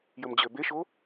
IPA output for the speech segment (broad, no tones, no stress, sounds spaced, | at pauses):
j ə m d͡ʑ ø b e ʃ o